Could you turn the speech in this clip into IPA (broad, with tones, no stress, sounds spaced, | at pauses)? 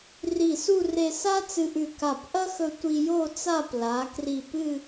r i˧˩ s u˥˧ r e˧ s a˥ t͡s ɨ˧ ʔ ʉ˧˩ k a˧˩ p ʔ ɐ˥ x ɵ˧ tʷ i˧ j o˥˧ t͡s a˥˧ p l a˩˧ k r i˧˩ p ɨ˥˧